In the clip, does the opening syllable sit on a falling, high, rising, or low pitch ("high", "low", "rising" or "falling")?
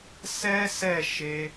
high